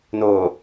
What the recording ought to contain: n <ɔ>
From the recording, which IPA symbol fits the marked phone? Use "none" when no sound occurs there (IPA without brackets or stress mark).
o